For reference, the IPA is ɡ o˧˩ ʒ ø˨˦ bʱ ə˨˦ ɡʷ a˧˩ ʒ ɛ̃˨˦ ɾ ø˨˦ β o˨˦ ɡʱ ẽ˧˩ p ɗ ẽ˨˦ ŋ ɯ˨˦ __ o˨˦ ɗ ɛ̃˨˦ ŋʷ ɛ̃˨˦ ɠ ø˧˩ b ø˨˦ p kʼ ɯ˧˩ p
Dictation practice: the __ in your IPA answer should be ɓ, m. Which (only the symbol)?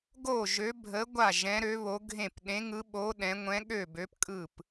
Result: ɓ